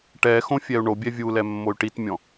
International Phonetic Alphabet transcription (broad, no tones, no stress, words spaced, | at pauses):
ʈɛxõ fʲɛu̯ɳobʲɛ vʲulɛ mːoy̯ʈitmʲɔ̃